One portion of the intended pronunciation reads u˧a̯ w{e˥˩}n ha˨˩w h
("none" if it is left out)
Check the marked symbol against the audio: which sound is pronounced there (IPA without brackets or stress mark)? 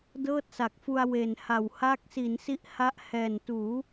e˨˩